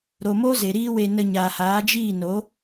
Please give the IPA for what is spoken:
ɾ o˨ m o˦ z e˨ ɾ iː˦ w e˧ n ə˧ ɲ aː˨ h aː˨˦ d͡ʒ iː˦˨ n o˨˦

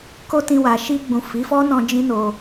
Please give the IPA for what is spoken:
k o˦ t ĩ˧ w a˨ ʃ i˧ ɡ͡b ũ˨ f i˨˦ f ɔ˦ n ɔ̃˧ d͡ʒ ĩ˦ n o˧

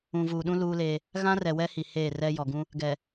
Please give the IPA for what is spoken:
ũ˨ v uː˨ ɗ ũ˦ l uː˦ l eː˦ | ɣ ã˦ r ɛ˨ w ɛ˦ h i˨ h eː˦˨ r ɛ˦ j ɔ˨ ɡ ũ˦ | ɡ ɛ˨

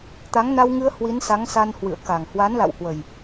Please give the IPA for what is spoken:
t̪ a˨˦ ŋ n a˧ w ŋ ɨ˧ ə̯ h w i˨˦ n s a˨˦ ŋ s a˧ n h w ɨ̰˧˨ ə̯ k a˨˩ ŋ h w a˨˦ n l a̰˧˨ w h w ə˨˩ j

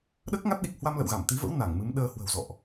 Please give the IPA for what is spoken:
ɗ əː˦˥ k̚ ŋ a˦˥ t̚ ɗ i˨˩ k̚ h w a˧ m l ə̰˧˨ w ɣ a˧˩ m t̪ i˨˦ v ə̰˧˥ w n a˧˩ ŋ m ɨ˨˦ m ɗ əː˧ h w ə̤˨˩ w z ɔ̰˧˨ ʔ

